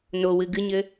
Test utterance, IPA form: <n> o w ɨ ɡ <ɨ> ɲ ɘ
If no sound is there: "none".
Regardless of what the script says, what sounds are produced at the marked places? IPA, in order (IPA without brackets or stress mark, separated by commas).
n, ɨ